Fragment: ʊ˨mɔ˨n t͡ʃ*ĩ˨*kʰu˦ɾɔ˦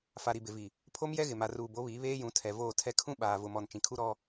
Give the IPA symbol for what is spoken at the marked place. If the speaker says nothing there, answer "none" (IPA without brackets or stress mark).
ĩ˨